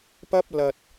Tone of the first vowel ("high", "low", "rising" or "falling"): high